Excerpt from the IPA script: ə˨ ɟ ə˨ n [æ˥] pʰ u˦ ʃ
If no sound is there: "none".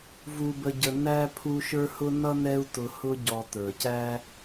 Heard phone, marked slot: æ˦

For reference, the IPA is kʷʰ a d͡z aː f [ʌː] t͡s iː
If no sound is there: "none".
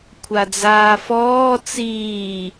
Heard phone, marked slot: ɔː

